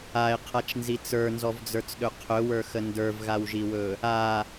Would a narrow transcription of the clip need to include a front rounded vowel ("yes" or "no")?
no